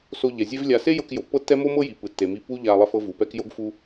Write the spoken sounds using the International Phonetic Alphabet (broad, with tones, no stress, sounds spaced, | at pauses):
s o˧ ʎ ɛ˩ zʲ e˥ v lʲ a˧ s e˥ j ɤ˧ k j o˩ pː ɤ˥ tː ɛ˥ m o˥ m ɤ˥ j i˩ p ɯ˩ tː e˩ m i˧ p u˥ ʎ a˧ lˠ ɛ˧ f ɤ˧ v u˩ p ɛ˥ k j o˥ ɡ f u˥